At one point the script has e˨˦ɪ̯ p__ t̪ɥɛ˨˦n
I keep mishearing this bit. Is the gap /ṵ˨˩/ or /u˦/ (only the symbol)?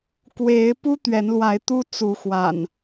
u˦